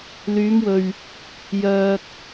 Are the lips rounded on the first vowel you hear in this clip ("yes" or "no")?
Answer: yes